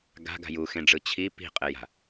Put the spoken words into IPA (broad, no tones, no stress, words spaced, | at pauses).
ɡa̤ɡa̤ juxẽɖ͡ʐɯ t͡ɕʰi pi̤qʼeja̤